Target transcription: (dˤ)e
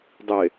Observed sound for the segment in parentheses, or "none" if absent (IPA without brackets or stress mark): dˤ